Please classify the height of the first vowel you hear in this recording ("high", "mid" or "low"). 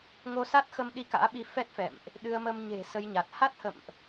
mid